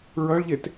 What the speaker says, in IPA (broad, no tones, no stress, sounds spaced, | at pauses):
ɹ ʌ ɭ ʎ e t